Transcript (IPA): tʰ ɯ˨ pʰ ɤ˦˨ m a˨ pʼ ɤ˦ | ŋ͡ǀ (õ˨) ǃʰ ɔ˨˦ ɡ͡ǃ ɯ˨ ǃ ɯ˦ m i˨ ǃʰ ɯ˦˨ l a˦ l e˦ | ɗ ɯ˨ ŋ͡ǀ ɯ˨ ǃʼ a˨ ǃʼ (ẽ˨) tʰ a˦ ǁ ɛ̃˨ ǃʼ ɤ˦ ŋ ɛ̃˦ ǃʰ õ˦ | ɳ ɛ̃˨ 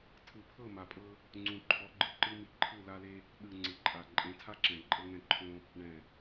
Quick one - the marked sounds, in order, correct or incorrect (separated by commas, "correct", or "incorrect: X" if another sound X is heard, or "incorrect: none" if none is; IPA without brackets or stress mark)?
incorrect: ũ˨, incorrect: ẽ˨˦